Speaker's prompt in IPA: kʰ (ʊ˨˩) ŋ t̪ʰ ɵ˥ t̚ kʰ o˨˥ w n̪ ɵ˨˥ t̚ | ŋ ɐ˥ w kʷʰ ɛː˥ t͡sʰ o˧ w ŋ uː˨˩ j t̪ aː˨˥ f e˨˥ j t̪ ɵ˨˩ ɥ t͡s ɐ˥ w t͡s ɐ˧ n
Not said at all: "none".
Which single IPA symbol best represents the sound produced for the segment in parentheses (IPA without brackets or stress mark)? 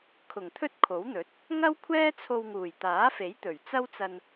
ʊ˨˩